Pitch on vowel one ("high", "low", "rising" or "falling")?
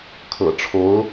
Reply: low